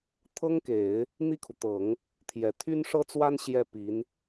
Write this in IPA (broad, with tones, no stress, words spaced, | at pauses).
t̪ʰɤ˥ŋke˨˩˦ɪ̯ | n̪i˥˩kʰu˩t̪ɤ˨˩˦ŋ | t̪ʰjɛ˨˩ t̪ʰy˥nʂɤ˥t͡swa˥n ɕjɛ˥˩pi˧˥n